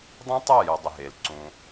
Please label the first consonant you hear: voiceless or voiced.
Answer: voiced